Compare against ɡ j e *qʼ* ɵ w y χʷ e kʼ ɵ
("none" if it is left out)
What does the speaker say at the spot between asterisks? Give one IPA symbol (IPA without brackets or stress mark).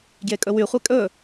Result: kʼ